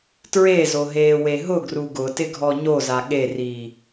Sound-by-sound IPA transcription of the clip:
t ɹ e z o ɦ eː w e ɦ ʊ ɡ r u ɡ ʊ t ɪ ɡʱ ɔ ɲ o z a ɠ e r iː

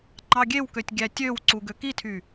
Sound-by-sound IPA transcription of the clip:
ŋ͡ǃ ɑ ɡʲ e w k ø tʲ ɡʲ æ tʲ ø w ǀ u ɡ ø k i tʰ y

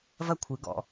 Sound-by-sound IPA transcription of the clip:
v ɐ˥˧ kʷʰ ɨ˩˧ ɡ ɔ̰˧˩˧

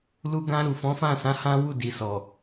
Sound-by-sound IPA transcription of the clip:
l u˧ ɡ ã˧ ɾ u˨ f ɔ̃˨˦ f ã˦˨ s ã˨˦ h ã˦ w u˦˨ d i˨ s ɔ˨

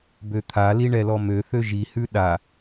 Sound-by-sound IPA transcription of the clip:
b ø t̪ʰ a l i ɳ ɛ l ɔ m ø θ ø ʒ i h ʉ ɗ a

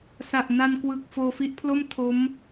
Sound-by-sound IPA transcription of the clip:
s a˨˩ ʔ n a˧ n k w ɯ˨˩ k̚ f oː˧ f i˦˥ ʔ pʰ l o˥˩ m tʰ o˦˥ m

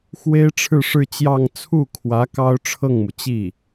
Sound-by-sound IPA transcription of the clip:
x w e˥ ɪ̯ ʈ͡ʂʰ ɻ̩˥˧ ʂ ɻ̩˥˧ t͡ɕ j ɑ˥˧ ŋ t͡sʰ u˥˩ kʰ w ä˧˥ k ɑ˥ ʊ̯ ʈ͡ʂʰ ɤ˥˩ ŋ m u˩ t͡ɕ i˥˩

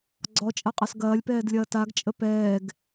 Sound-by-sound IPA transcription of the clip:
ɡ͡ǀ ɔ t͡ʃʼ ɐ qʼ a s ɡ ɐː lʲ p ɛː d lʲ ɐː t a ɡ t͡ʃʼ ə p ɛː ɡ

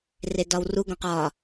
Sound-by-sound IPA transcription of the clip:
r e d ɒ w r u ɡ õ q ɒ

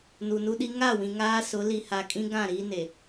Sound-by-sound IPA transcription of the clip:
n u˨ n u˦ ɗ i˦ ŋ a˦˨ w ĩ˨ ŋ aː˦ s ʊ˨˦ l i˨ h a˨ kʼ ĩ˦ ɡ ã˦˨ ɾ iː˦ n e˨

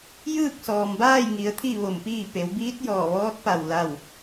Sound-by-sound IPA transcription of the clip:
j ɯː˥˨ k̚ s ɔː˩ m b aː˥˨ j ŋ i˩˧ ə̯ t̪ʰ i˥˨ ʋ o˧˩ m p iː˥˨ p e˩˧ w b iː˧˥ t̚ j ɔː˧˩ ʋ ɔː˧˥ t̚ p a˧˩ w l a˥˨ w

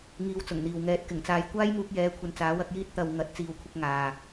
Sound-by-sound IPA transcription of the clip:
ŋ iː˧ w t͡s ʊ˨˩ ŋ n̪ iː˨ w ŋ ɛː˨˥ t̚ k ɪ˨˩ ŋ t͡s aː˧ j kʷ aː˥ j m uː˧ k̚ j ɛː˨˧ kʷʰ ɐ˨ n t͡s aː˨˥ w ɐ˨˥ k̚ j iː˥ t̚ t̪ ɐ˧ w ŋ ɐ˨˥ t̚ t͡s iː˨ w kʷʰ ɪ˧ k̚ ŋ aː˨

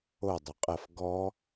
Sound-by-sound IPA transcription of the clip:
o dˤ u qʼ ɐ f ɡ ɔ

